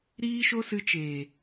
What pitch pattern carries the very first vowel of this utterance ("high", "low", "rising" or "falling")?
high